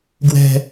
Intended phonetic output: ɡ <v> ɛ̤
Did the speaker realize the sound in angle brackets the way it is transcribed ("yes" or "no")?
no